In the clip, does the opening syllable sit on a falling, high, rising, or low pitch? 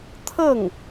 falling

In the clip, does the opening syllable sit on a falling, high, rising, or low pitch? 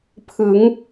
rising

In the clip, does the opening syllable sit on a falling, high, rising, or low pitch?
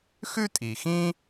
high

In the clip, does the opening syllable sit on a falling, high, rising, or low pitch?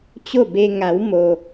falling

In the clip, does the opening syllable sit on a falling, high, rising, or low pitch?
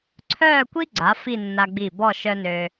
falling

